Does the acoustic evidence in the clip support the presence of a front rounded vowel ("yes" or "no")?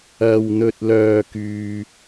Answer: yes